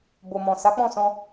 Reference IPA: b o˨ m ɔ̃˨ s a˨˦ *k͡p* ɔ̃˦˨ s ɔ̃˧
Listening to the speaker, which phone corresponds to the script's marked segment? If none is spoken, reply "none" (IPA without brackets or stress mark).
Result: k͡p